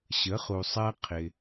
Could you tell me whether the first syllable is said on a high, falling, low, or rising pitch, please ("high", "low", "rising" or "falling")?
rising